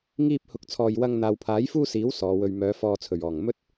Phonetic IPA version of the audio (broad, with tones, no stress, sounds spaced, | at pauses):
ŋ iː˧ p̚ h ʊ˨ k̚ t͡sʰ ɔː˨ j w ɐ˧ ŋ n̪ aː˨ w pʰ aː˨˥ j f uː˥ s iː˨˥ w s ɔː˨˧ w ɵ˧ ɥ m œː˨˧ f ɔː˧ t͡sʰ ɵ˨˩ ɥ ɔː˨˩ ŋ m ɵ˥ t̚